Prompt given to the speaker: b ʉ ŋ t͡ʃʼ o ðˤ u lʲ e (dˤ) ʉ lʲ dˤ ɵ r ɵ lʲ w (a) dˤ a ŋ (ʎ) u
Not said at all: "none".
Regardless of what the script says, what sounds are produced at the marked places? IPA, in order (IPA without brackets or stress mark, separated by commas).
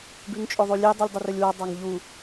dˤ, a, ʎ